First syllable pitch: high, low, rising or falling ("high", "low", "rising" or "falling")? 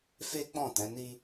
high